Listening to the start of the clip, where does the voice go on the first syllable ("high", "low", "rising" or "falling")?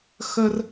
high